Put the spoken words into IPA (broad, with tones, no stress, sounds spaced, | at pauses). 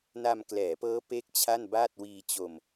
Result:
n a˧ m k l ɛː˩˦ p ɤː˦˥ p e˥˩ k̚ t͡ɕʰ a˥˩ n b aː˥˩ t̚ w iː˧ t͡ɕ o˧ m